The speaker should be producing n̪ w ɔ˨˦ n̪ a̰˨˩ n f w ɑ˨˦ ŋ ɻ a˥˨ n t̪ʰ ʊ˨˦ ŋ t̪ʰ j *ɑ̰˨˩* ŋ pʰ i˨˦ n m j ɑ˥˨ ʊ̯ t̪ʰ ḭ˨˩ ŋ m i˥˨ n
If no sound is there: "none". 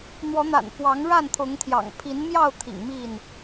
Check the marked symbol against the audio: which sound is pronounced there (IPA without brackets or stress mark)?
ɑ̰˨˩